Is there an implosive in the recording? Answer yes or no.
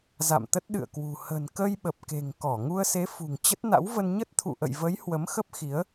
yes